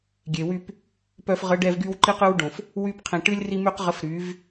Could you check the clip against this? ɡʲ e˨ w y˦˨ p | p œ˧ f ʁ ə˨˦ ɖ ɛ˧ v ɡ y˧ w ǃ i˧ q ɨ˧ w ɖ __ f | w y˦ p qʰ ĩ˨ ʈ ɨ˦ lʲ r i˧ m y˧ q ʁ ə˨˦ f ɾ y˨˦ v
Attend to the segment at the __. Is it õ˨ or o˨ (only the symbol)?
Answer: õ˨